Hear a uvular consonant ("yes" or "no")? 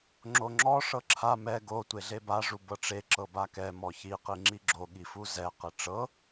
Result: yes